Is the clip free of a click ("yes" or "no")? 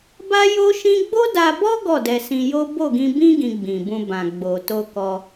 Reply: yes